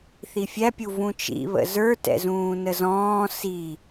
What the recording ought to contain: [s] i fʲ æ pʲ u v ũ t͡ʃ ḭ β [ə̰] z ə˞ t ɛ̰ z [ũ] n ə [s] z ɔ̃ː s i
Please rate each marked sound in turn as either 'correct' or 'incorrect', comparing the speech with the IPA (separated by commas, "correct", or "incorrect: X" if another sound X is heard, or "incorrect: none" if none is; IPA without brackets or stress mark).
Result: incorrect: θ, correct, incorrect: ũː, incorrect: none